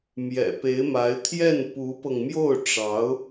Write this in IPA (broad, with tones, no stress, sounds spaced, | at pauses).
m j ɛ̰˨˩ p e˧˥ ɪ̯ m a˧˥ ɪ̯ t̪ʰ j ɛ˥˩ n p u˧˥ p ɤ˧ ŋ m j o˥˩ ʊ̯ ʈ͡ʂ ɑ˧˥ ʊ̯